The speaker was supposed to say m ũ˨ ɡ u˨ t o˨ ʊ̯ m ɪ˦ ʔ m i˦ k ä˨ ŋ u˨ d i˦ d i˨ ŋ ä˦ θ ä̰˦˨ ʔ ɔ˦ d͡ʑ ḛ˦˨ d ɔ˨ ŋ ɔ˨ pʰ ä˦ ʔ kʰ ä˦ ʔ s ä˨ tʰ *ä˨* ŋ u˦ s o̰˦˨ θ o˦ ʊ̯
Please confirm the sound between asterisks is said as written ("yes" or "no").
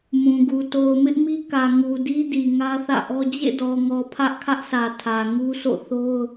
yes